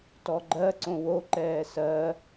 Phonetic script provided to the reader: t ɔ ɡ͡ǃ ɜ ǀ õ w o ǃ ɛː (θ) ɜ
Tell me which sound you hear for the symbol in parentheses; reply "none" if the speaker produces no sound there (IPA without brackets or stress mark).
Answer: s